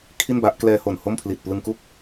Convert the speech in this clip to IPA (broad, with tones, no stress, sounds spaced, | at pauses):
kʰ i˥˩ n b a˦˥ ʔ k l ɛː˧ h o˨˩ n h o˥˩ m pʰ l i˨˩ t̚ p l ɯ˧ ŋ k u˥˩ k̚